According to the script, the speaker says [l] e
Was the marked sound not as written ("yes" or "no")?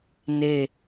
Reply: yes